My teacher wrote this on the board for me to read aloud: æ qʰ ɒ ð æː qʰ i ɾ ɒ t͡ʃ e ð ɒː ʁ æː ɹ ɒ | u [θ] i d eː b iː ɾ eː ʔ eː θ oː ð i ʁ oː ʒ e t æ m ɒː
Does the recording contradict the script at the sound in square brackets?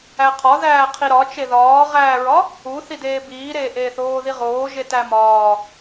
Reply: no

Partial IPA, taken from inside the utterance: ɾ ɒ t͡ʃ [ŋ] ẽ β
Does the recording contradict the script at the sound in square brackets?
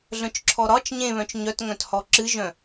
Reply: yes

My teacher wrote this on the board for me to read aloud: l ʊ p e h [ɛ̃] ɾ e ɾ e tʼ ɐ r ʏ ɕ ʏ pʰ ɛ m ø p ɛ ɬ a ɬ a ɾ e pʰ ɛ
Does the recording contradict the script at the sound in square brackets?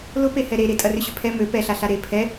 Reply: yes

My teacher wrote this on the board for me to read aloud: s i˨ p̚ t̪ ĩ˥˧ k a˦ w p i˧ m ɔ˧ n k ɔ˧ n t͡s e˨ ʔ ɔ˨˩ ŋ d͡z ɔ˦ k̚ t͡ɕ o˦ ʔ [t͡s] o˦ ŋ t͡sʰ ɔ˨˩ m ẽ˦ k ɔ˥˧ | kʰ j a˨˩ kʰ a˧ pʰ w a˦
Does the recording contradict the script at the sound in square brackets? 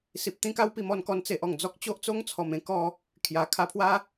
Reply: no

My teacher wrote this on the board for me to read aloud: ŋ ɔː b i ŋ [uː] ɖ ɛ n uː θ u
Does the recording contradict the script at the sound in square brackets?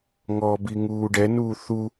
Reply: no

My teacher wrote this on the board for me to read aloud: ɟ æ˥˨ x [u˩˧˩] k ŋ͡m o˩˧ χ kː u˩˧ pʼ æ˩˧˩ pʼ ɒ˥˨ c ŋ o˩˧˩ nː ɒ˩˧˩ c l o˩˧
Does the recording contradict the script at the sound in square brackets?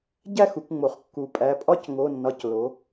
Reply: yes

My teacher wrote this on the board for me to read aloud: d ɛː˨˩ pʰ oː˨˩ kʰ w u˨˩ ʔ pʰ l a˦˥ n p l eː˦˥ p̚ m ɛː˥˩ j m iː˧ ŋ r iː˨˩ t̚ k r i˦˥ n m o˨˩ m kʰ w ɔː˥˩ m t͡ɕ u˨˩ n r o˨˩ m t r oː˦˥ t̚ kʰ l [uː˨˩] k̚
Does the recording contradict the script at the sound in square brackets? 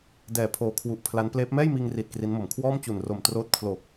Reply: yes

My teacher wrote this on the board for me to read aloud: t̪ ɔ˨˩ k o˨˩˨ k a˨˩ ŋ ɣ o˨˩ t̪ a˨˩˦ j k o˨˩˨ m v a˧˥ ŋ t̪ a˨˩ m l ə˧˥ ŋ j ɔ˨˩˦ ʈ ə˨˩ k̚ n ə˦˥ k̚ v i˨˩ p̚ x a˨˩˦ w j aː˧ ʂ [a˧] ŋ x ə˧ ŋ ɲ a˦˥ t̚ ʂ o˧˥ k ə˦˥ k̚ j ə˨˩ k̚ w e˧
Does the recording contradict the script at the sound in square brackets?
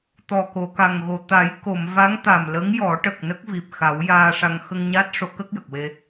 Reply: no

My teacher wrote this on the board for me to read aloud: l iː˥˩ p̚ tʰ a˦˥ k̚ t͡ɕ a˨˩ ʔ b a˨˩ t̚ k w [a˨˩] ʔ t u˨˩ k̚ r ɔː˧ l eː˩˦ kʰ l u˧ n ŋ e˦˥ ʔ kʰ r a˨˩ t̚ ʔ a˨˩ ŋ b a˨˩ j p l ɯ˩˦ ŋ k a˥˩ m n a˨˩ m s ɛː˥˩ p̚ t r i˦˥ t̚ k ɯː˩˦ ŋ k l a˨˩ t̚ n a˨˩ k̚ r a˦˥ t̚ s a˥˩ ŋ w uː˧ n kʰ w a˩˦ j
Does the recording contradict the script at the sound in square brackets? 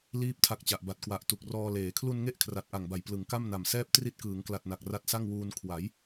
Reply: no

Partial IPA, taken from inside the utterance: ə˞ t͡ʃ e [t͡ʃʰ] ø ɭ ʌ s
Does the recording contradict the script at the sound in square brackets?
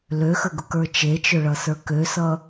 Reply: yes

